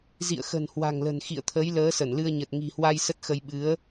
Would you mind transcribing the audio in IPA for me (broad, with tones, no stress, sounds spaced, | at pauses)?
z ḭ˧˨ ə̯ x ə̤˨˩ n h w a̤˨˩ ŋ l ə̤˨˩ n x ḭ˧˨ ə̯ t̪ʰ ə˨˦ j l əː˨˦ s ə˧˩ n l ɨ˧ ə̯ ɲ ə˨˩ t̚ ŋ i̤˨˩ h w a˧ j s ə˦˥ t̚ x ə˧ j ɓ ɨ˨˦ ə̯